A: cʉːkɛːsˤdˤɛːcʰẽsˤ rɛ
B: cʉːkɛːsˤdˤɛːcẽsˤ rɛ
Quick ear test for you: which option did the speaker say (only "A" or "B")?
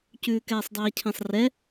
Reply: A